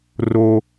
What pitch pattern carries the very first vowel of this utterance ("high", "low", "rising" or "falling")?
high